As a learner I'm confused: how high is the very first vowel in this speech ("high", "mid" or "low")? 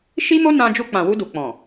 high